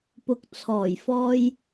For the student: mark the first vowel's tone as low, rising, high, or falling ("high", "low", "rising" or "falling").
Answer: low